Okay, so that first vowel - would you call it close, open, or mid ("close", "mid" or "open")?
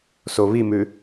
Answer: mid